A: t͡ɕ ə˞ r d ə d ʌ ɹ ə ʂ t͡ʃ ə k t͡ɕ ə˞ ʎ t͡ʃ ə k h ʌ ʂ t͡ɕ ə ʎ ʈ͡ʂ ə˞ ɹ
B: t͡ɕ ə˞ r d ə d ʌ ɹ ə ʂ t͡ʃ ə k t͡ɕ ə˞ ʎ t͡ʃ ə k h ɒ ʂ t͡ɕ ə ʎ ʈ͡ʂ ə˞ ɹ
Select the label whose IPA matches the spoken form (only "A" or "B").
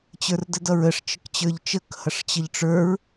A